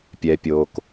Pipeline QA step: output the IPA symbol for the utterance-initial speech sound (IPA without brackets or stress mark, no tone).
pʲ